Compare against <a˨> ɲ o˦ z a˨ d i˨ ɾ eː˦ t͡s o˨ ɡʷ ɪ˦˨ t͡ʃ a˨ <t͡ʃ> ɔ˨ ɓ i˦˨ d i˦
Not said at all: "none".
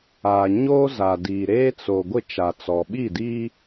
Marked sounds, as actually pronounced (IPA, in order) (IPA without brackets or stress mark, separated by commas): a˨, t͡s